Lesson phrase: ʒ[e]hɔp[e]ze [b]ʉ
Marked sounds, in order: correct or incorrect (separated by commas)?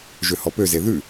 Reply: incorrect, incorrect, incorrect